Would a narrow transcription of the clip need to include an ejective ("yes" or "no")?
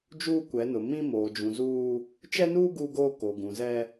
no